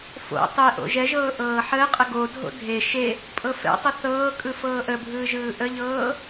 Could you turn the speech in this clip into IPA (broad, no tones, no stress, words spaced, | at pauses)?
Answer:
fo̰ tˤe ʔo̰ʒɛʒɤː ʔɤːħəːqʼə ɡodʱo̰ dʱe ʃe | pʼɤfɛ̰tˤə θɤː kʼɯfɤːʔəbʱɯː ʒɯːʔəʎɤː